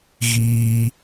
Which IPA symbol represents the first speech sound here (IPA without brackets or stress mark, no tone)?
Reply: ɣ